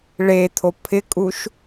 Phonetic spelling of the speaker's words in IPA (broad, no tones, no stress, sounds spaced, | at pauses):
ɭ e t̪ʰ o pʰ ɪ kʼ u ʃ